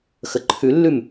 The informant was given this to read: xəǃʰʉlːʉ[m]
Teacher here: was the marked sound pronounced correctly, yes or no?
yes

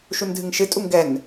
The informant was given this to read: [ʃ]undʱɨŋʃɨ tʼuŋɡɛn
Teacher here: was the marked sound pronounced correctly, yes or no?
yes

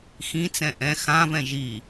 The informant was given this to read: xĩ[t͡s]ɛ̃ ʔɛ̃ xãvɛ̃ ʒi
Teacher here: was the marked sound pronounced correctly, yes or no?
yes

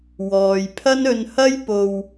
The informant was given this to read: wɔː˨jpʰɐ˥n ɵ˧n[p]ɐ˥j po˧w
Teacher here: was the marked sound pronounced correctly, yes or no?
no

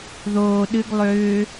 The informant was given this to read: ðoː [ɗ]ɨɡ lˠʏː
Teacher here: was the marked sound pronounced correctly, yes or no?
yes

